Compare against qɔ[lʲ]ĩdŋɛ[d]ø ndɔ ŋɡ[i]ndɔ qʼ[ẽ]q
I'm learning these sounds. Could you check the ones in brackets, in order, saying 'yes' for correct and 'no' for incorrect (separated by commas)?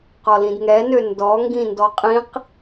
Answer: no, no, no, no